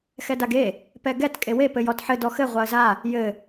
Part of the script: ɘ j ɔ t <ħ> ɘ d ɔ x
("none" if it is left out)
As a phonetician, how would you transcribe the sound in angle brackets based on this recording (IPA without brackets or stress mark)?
ħ